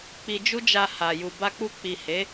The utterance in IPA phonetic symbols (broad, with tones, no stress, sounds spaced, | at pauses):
k͡p i˧ d͡ʒ u˦ d͡ʒ a˧ h a˨ j u˨ b a˧ k͡p u˧ k͡p i˨ h e˨˦